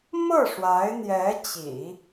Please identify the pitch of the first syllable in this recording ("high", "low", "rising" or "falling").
falling